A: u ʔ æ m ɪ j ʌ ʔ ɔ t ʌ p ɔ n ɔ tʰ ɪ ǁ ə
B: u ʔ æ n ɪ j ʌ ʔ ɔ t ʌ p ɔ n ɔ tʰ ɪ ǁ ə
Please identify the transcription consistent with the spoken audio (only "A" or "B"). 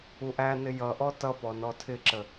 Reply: B